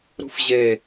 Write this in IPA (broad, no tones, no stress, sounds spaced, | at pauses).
ɾ ṳ f ʑ e